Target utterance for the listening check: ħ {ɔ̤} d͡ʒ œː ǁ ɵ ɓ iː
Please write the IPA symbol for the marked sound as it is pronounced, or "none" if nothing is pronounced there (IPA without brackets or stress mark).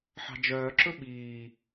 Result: ɑ̤